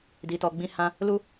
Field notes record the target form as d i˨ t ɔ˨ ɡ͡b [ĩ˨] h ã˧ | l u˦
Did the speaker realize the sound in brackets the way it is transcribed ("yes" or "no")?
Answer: no